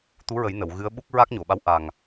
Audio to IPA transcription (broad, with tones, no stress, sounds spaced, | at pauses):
t̪ u˧˥ ɹ ə˨˩˦ j n ə˨˩˨ w ɣ ɨ˧˥ ə̯ ɓ u˦˥ k̚ ɹ a˦˥ k̚ ɲ o˨˩˨ ɓ a˧˥ w ʔ a˨˩ ŋ